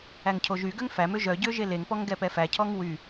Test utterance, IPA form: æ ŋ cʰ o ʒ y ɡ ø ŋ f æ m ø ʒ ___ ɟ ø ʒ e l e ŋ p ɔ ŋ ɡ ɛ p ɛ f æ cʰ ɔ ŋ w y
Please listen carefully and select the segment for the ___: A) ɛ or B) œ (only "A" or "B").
B